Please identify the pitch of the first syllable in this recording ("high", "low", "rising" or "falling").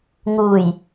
low